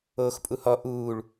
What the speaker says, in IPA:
oː x pʼ u h ɔ ʔ uː ɭ

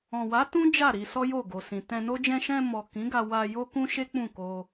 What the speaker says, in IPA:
ɔ̃˨ w a˨˦ t ũ˦ d͡ʒ a˦˨ ɾ i˧ s ɔ˦ j o˦˨ ɡ o˨ s ĩ˨ t ɛ̃˧ n o˦ d͡ʒ ɛ̃˧ ʃ ɛ̃˧ m ɔ˨ k ĩ˨˦ ɡ a˧ w a˧ j o˦ k ũ˦ ʃ e˦ k͡p ũ˦˨ k o˧

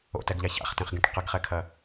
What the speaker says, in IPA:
o̰ t ɛ ɡ ʎ a ç a̰ χ t ẽ χ ɡ ẽ ʈ q ɐ ɡ χ ɛ kʰ ɐ

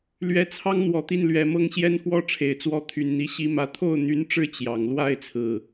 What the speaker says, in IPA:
l ɥ ɛ˧˥ t͡sʰ ɑ˥ ŋ n̪ w ɔ˨˩ t̪ i˥˩ n l ɥ ɛ˨˩ m ɤ˥ ŋ ɕ j ɛ˥ n x w ɔ˥ ʈ͡ʂʰ e˨˩ ɪ̯ t͡s w ɔ˥ t̪ʰ y˨˩ n n̪ i˧˥ ɕ i˧˥ m ä˧˥ t̪ʰ o˥˩ ʊ̯ n̪ y˧˥ n ʈ͡ʂ ɻ̩˥˩ t͡ɕ j ɑ˨˩ ŋ l w a˥˧ ɪ̯ t͡sʰ ɹ̩˥˩

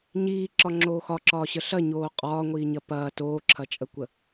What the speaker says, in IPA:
ɲ iː ǁ ɒ ŋ͡ǁ oː x ɒ ǁ ɒː ɕ ə ɬ ɐ ɲ oː qʼ ɒː ŋʷ iː ɲ ɐ p ɐː t oː ǁʰ ɐ t͡ʃʼ ə kʷ ə

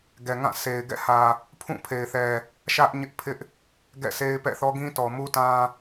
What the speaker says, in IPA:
ɡ ɛ˨ ŋ ã˦˨ sʰ e˨ ɪ̯ ɡ ɛ̰˦˨ h ä˨ | pʰ ũ˦˨ pʰ e˨ ɪ̯ θ ɛ˨ | ʃ ä˦ ʔ ɲ ɪ˦ ʔ pʰ ɪ˦ ʔ | ɡ ɛ̰˦˨ sʰ e˦ ɪ̯ p ɛ̰˦˨ θ ɔ˦ ɡ ĩ˦ t ɔ˨ m u˦ t ã˦

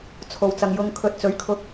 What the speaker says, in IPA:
t͡sʰ o˨ w t͡s ɐ˨ ŋ j ʊ˧ ŋ kʰ ɵ˧ t̚ t͡s ɵ˨˥ ɥ kʰ ʊ˧ k̚

